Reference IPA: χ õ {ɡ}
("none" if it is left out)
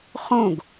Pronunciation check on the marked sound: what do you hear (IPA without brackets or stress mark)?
ɡ